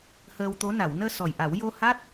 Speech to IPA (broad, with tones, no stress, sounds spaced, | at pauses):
h əː˧ w t̪ o˧˥ n a˨˩˨ w n əː˧ s ɔ˨˩ j ʔ a˨˩˦ w j o˧ h a˦˥ t̚